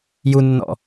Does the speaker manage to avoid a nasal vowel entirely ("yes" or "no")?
yes